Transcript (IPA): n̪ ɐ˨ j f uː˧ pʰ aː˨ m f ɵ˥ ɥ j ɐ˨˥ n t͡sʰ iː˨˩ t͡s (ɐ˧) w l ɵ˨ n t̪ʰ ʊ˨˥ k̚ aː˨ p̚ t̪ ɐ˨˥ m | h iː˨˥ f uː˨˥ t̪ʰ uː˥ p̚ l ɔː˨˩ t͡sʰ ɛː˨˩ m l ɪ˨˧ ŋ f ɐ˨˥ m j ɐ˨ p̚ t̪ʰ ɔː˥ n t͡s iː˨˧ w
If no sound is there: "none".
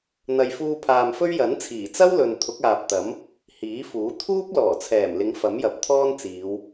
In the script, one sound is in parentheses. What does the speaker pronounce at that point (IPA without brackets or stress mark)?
ɐ˥